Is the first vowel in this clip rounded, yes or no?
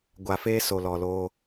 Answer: no